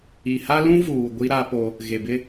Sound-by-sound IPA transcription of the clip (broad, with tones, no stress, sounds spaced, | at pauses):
i˨ h a˦ l ũ˦ v uː˨ ɡʷ i˦ ɾ a˦ p o˦ | ɣ e˨ b ɪ˦